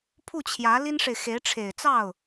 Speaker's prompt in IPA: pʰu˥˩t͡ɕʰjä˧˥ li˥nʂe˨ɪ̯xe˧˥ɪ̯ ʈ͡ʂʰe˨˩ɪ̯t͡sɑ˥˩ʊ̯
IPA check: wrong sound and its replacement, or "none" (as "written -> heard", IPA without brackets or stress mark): none